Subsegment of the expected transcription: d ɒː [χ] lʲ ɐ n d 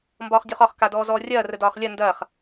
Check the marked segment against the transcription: correct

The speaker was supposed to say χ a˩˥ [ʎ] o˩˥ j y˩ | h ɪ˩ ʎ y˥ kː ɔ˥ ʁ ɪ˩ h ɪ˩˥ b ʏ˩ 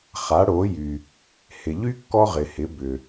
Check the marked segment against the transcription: incorrect: ɽ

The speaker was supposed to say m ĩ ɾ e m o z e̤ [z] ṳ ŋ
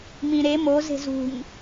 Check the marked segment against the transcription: correct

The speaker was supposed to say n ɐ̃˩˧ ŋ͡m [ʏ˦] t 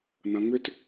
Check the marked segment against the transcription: correct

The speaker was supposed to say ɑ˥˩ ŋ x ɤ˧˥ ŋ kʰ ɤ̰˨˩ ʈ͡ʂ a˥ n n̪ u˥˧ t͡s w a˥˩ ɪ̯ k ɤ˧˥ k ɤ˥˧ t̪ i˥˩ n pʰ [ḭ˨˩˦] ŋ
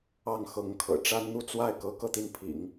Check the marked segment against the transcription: correct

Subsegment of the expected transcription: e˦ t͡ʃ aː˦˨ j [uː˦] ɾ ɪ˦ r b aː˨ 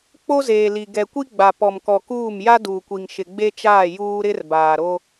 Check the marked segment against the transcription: correct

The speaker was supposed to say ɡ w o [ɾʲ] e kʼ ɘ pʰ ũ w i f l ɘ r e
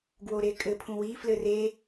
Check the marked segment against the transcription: incorrect: ɾ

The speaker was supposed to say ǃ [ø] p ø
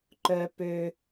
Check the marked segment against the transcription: incorrect: œ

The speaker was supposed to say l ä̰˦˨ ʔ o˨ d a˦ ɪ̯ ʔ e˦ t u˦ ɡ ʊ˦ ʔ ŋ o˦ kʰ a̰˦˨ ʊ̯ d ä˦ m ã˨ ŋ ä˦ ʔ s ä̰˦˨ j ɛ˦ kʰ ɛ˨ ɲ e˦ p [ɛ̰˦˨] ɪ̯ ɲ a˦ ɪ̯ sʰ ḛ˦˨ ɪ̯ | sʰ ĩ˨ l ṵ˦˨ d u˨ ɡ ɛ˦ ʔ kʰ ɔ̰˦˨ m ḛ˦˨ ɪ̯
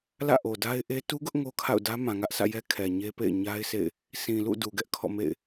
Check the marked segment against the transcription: incorrect: ḛ˦˨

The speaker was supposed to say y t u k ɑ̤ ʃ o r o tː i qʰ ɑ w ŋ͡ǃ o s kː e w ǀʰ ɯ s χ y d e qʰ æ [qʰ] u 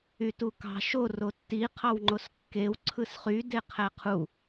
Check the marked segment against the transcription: correct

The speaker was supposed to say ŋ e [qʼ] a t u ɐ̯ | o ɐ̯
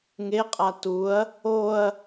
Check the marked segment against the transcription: correct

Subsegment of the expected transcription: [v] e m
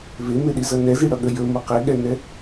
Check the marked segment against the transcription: correct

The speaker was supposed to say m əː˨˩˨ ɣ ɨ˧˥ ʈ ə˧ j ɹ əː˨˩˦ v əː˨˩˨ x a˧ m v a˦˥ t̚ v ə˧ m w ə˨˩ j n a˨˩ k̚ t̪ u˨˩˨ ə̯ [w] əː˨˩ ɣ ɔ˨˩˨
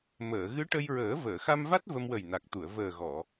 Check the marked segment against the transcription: incorrect: v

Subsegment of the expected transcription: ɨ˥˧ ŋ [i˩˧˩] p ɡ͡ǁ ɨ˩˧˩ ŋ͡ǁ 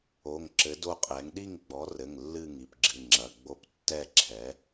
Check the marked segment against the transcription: correct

